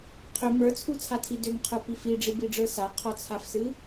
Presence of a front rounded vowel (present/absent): present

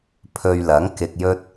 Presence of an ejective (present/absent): absent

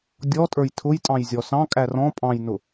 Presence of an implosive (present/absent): absent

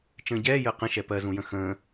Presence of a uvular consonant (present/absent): present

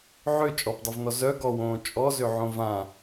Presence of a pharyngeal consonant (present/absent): present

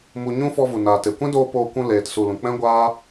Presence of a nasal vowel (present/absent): present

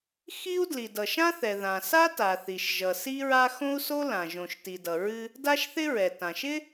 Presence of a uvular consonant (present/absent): absent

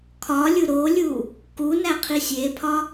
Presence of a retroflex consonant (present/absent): absent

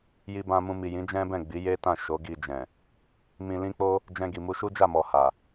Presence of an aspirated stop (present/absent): absent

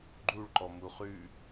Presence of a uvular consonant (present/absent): present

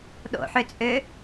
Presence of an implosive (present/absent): present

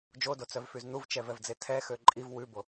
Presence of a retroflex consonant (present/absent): absent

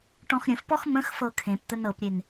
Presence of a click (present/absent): absent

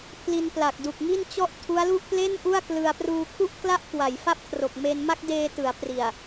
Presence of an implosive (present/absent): absent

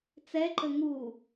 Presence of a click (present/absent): present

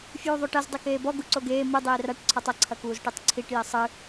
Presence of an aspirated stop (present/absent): present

